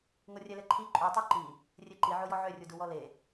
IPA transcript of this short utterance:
ŋ o rʲ ɛ l ɛ ǃʰ i ǃʼ u tˤ o ǃ i | rʲ e ǃ i ʕ o j ɔ ʕ ø rʲ u d u w ɔ l e

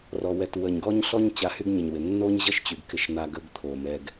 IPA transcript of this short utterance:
r ɔ˨ w ɛ˨ t w ə˨ ɲ ɡ ɔ˦ ɲ ɬ ɔ˦ ɲ t͡ɕ a˧ h y˦ ɡ ɲ ə˨ ɲ w ɪ˨ nː o˦ ɲ ʑ ʌ˦ ʃ t͡ɕ y˨ ɡ k ɪ˦ ʃ n̪ a˦ ɡ ə˦ ɡ t̪ʰ o˨ m ɛ˧ ɡ

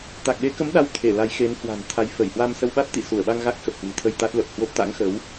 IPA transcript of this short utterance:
t̪ a˨˩ k̚ ɗ e˨˦ k ə˨˦ m ɗ a˨˦ w t̪ʰ e˧˩ l a˨˦ j x e˨˦ n h w a̤˨˩ n t̪ʰ a˨˦ j f ə˧˩ j h w a˧ m s ə˧ w ɓ a˦˥ t̚ t̪ ḭ˧˨ s u˧˩ ə̯ ɓ a˧ ŋ ɣ a˦˥ k̚ x ə˨˩ p̚ h w ɨ̤˨˩ t̪ʰ ə˧ j t̪ a˦˥ t̚ l ə˨˩ p̚ h w o˦˥ p̚ t̪ a̰˧˥ ŋ x ə˨˦ w

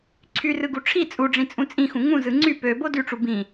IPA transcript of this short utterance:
ǀʰ y r ɯ ɡ u ʈ͡ʂʰ i t͡sʼ u ɖ͡ʐ ĩ t͡sʼ ũ t͡sʼ ĩ x ũ ŋ ũ z ɯ ŋ͡ǀ y p ø b o d y ʈ͡ʂ u b ĩ

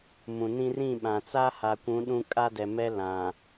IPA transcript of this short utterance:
m ũ˨ n ĩ˦ r ĩ˦˨ ɓ ã˨ t͡s a˦ h a˨ kʷ ũ˨˦ ɗ ũ˦ kʼ a˦ d ɛ˨ m ɛ˦ l ã˨

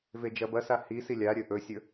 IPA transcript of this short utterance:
v e d͡ʒ ɐ b ɐ s a h i s i lʲ a ɾʲ ɵ ʔ ɵ sʲ ɵ

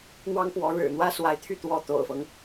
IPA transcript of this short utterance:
n̪ w ɑ˥ ŋ p w ɔ˧˥ ɻ ɻ̩˨˩ n̪ w ä˥ s w a˧˥ ɪ̯ t̪ʰ y˥˩ t̪ w ɔ˧˥ t̪ o̰˨˩ ʊ̯ f ɤ˦ ŋ

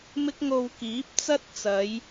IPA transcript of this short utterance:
m ɪ˥ k̚ ŋ o˧ w k iː˨˥ p̚ t͡s ɐ˥ t̚ t͡s ɐ˨˧ j

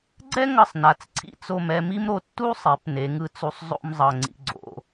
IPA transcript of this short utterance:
ɡ͡ǀ ɛ˥ ŋ ʌ˧˩ sˤ n a˩˧ t͡s ǀʰ ḭ˧ t͡s o˧˩ m ɛ˥˧ m i˥ m ɾ o˧ tː u˥ sˤ ɛ˩˧ p n e˩˧ ŋ ɯ˧ t͡s u˧ sˤ zˤ o̰˥ m zˤ ʌ˧˩ ŋ͡ǀ ḭ˥˧ ɡ͡ǀ o̰˧

